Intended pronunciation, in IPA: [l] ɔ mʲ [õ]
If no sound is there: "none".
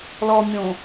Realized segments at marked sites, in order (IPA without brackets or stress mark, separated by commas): l, õ